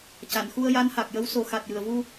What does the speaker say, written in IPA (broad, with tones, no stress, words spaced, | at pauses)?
ca˨˩˨nxu˧ə̯ja˧˥n ha˨˩k̚jə˧˥wso˨˩˦ xa˨˩t̚jɨ˨˩˨ə̯vu˧